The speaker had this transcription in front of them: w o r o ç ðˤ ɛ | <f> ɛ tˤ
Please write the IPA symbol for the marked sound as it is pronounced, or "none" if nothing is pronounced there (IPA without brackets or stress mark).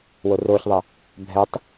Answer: bʱ